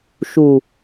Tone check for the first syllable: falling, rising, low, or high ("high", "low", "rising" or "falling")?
low